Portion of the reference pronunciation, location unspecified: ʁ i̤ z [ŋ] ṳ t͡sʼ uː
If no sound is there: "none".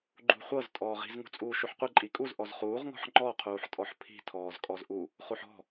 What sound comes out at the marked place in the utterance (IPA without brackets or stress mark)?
ŋ